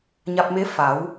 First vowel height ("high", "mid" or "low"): low